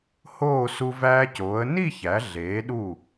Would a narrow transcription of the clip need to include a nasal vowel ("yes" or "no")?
no